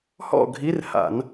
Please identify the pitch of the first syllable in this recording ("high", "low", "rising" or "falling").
falling